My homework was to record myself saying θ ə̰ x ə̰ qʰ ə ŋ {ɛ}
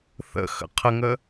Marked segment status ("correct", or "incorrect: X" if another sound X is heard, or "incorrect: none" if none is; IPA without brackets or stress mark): incorrect: ə